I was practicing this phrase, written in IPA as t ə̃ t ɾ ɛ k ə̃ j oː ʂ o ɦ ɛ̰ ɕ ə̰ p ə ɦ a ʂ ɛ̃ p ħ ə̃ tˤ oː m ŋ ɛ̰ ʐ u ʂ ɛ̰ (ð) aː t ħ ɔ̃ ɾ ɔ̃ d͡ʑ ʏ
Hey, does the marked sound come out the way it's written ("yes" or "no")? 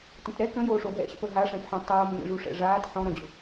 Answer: no